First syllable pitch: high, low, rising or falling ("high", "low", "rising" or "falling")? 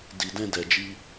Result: low